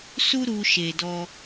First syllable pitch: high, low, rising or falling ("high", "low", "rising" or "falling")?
high